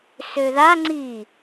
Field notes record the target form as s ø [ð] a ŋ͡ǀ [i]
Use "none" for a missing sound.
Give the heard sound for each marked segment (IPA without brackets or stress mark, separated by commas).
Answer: ð, i